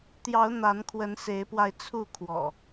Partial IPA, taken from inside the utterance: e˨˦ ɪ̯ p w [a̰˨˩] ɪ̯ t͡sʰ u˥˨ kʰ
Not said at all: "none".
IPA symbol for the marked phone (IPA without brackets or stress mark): a˧